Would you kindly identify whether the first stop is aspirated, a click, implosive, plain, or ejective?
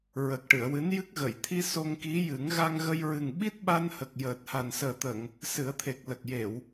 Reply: plain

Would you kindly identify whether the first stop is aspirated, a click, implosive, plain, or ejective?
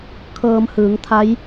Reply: aspirated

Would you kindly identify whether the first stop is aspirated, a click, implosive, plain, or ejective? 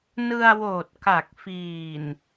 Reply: plain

